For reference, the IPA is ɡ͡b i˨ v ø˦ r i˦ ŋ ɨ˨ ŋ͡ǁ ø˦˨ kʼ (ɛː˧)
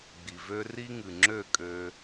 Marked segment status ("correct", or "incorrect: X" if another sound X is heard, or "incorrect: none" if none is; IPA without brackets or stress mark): incorrect: øː˧